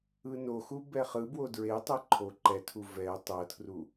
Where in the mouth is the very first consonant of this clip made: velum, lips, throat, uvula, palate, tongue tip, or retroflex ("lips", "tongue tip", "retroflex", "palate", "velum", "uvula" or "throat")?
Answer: tongue tip